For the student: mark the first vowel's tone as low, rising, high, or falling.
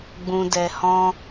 low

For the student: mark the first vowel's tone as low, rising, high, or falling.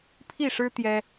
falling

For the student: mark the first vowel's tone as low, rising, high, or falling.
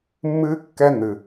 high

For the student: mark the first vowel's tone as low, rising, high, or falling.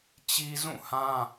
high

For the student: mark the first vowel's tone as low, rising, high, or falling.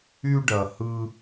high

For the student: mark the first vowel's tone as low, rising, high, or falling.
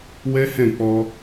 high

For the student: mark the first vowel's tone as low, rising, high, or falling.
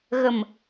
low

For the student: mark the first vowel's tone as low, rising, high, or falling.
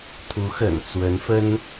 rising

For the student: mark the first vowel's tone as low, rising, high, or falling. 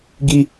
high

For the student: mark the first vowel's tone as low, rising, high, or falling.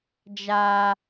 high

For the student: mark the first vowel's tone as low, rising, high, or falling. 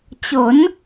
rising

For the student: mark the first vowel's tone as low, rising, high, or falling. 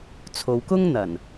low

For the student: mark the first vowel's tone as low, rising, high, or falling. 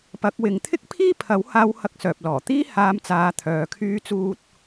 rising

